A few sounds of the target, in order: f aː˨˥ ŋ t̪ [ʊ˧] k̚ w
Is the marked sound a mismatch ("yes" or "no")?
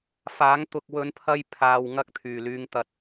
no